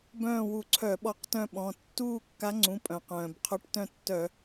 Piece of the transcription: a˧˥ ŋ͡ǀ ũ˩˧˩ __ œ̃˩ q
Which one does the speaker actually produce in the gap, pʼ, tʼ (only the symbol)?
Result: pʼ